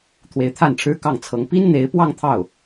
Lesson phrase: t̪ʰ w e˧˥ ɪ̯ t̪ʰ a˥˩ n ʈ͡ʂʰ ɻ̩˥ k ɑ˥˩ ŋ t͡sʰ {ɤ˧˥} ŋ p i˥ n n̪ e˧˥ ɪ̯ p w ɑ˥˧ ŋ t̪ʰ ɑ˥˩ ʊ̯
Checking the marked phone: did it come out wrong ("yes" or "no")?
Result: no